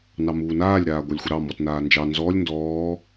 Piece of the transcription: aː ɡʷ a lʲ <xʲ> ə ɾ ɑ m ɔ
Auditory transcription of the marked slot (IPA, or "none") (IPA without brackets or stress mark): xʷ